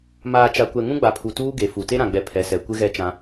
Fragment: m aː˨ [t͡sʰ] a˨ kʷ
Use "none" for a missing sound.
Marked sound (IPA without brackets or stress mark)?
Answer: t͡ʃ